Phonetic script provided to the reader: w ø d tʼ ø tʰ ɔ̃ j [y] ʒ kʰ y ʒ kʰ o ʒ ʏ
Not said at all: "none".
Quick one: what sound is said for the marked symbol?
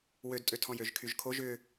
ø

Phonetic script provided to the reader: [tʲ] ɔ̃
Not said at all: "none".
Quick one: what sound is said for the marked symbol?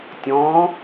tʲ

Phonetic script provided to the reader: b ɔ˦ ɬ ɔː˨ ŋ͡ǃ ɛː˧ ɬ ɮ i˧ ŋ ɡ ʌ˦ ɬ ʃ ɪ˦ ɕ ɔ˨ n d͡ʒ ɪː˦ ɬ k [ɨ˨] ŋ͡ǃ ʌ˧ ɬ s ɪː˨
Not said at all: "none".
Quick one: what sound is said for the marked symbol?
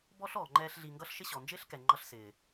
ɛ˨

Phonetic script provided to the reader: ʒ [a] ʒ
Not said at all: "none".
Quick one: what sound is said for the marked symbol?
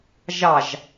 ɑ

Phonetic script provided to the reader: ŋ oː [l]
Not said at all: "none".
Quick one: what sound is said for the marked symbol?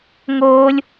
lʲ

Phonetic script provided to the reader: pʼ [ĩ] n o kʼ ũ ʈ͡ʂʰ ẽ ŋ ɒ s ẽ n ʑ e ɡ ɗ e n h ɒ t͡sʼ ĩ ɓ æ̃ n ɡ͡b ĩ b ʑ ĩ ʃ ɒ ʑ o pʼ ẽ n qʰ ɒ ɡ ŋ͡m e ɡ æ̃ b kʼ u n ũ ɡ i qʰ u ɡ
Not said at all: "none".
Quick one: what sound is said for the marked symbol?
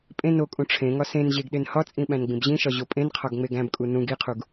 ẽ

